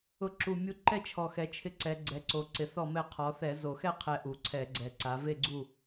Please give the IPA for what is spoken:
ʊ˧˩˧ǁu˨˩ mʲu˧ ǃɛ˥˨t͡ʃʰɔ˨˩xɛ˩˧ t͡ʃʰɪ˧ǀɛ˩˧ɡ͡ǀɛ˩˧ǀo˩˧ ǀɪ˩˧θɔ˥˨mɛ˥˨ qʰɔ˩˧θɛ˧˩˧ zo˨˩xɛ˥˨ qʰɛ˧ʔu˩˧ǀʰɛ˧˩˧ɡ͡ǀɛ˨˩ ǀa˩˧ve˥˨ɡ͡ǀu˥˨

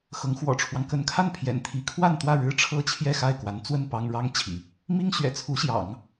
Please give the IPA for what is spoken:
xɤ˧˥ŋ xwɔ̰˨˩ʈ͡ʂʰwɑ˦ŋ kə˧˥nkʰa˥˩npʰjɛ̰˨˩n t̪ʰi˧˥ kʰwa˥˧nt̪wä˥˩ ɻɻ̩˥ʈ͡ʂʰɤ˥t͡ɕʰjɛ˥˧ xa˥˩ɪ̯kwa˧˥n t͡swə˥˩n pɑ˥ŋ ɻɑ˥ŋt͡ɕʰḭ˨˩˦ | mi˥ŋɕɥɛ̰˨˩t͡sʰu˧˥ ɕjɑ̰˨˩˦ŋ

